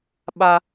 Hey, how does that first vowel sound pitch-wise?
high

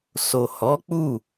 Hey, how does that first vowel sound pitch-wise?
low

